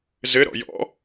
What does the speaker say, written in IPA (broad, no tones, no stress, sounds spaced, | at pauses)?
z ɘ ɾ ɔ̰ j ɔ̰